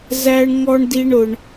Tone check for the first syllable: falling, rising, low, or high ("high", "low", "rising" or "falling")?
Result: high